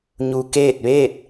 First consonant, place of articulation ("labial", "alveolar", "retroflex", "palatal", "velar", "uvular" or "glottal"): palatal